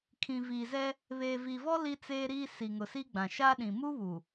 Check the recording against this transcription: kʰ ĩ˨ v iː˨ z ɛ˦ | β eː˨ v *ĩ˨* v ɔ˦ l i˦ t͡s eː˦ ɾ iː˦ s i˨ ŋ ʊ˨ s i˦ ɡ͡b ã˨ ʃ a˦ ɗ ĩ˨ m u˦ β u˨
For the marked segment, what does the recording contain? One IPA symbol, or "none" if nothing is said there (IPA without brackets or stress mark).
i˨